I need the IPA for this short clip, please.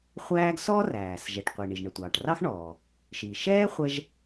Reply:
χʷ æː˥ ɡ s ɔː˥ r æː˩ s ʒ ɛ˩ ʈ qʷ i˩ ɳ i˩ ʒ ɳ ə˩ tʷ ɑː˩ ʈ r ɑ˥ x ɳ ɔː˩ | ʃ i˩ ʃ ɛː˥ χʷ ɛ˥ ʒ

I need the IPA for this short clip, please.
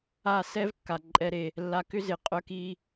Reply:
a˦˨ s ɛ˦ v kː a˨ ǃʼ ɛ˦ ɾ e˧ | lː a˧ k ʏ˦ z ɪ˨ qʼ œ˦ k i˦

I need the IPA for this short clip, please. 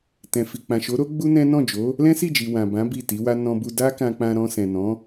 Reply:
t ɛ̃˨ f i˨ k͡p ã˨ ʃ o˨˦ ɾ o˦ ɡ͡b u˦ n ɛ̃˦ n ɔ̃˦˨ d͡ʒ o˨˦ | l ɛ̃˦ s i˦˨ d͡ʒ i˨ w ã˨ b ã˨˦ b i˦˨ t i˨˦ w a˦ n ɔ̃˧ b u˧ d a˦ k ã˧ k͡p ã˧ ɾ ɔ̃˧ s ɛ̃˨ n ɔ̃˨˦

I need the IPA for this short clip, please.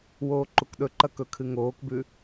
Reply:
w oː ǃ u k ɗ ɵ ǃ ɐ k ɵ kʰ ɨ ŋ oː k b ʉ

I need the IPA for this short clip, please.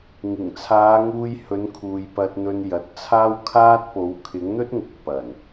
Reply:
ŋ ɪ˨˩ ŋ t͡sʰ aː˨˧ ŋ uː˧ j h ɵ˨˧ n kʰ uː˨ j p ɐ˧ t̚ n̪ ɵ˧ n j ɐ˨ t̚ t͡sʰ aː˥ w kʰ aː˥ t̚ p o˨˥ w kʰ ɪ˨˥ ŋ n̪ ɵ˥ t̚ ŋ ʊ˧ k̚ p ɐ˨˩ n

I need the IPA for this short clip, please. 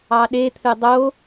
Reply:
ɑ ɗ e t̪ʰ ɨ dˤ o

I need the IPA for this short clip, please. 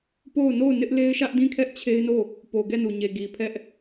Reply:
p o˦˨ ʊ̯ n o˦˨ ʊ̯ n ɪ˦ ʔ l e˦ ɪ̯ ʃ ä˦ ʔ d ĩ˦˨ kʰ ɛ˦ ʔ t͡ɕʰ e˦ ɪ̯ n o˦˨ | p o˨ ɡ ɛ˦˨ n u˨ ɲ e˨ ɡ i˨ pʰ ɛ˦ ʔ

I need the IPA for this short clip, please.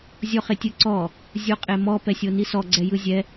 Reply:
zʲ ɔ χ e tʲ ɯ ǀ ɔ | zʲ o qʼ e m ɔ p ɛ sʲ o n i s ɔ ɡ͡ǀ ɛ j ɯ zʲ ɛ

